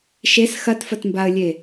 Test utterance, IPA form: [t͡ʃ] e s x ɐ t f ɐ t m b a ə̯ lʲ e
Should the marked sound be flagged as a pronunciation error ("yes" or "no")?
yes